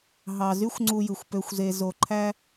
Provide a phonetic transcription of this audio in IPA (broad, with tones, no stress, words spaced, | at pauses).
ɦɑ˧ zy˥xʷŋ͡ǀu˧jɯ˩xʷ pø˧xʷze˧ zo˧ǃʰæ˥